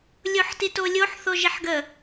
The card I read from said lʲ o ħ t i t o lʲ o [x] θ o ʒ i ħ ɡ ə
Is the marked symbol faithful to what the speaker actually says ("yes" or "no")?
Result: no